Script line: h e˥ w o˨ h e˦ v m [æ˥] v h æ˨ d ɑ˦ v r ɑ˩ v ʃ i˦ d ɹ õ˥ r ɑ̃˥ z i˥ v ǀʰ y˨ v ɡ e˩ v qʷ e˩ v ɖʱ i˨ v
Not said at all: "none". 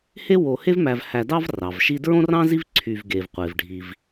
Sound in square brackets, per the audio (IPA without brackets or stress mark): æ˨